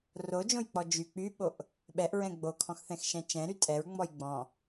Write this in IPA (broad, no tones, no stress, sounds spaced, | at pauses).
r o d͡ʒ õ j k͡p ɔ d͡ʒ y k͡p y ɓ o ʔ | ɓ ɛ ʔ ɹ ɛ̃ ɡ͡b o kʰ ɔ̃ x θ ɛ̃ x ʃ ɛ̃ t͡ʃ ɛ̃ ɾ y tʼ ɛ ɹ ŋ͡m ɔ j ɡ͡b ɔ̃